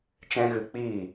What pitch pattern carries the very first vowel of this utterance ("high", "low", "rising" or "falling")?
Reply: high